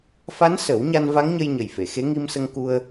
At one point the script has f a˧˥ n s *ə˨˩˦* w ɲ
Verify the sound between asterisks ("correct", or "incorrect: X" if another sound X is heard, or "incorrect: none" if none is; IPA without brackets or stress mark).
correct